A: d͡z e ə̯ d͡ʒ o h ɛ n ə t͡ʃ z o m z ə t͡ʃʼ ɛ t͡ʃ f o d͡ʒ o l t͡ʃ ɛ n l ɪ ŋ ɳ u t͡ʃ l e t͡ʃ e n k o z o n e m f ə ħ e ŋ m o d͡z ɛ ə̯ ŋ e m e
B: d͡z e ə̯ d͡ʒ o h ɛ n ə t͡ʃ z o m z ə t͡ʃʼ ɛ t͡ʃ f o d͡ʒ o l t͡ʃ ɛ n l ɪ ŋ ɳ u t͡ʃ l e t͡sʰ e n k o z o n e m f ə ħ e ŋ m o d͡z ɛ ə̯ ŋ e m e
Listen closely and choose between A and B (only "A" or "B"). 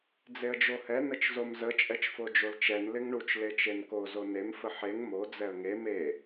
A